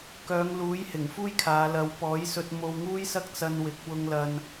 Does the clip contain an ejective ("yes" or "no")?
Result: no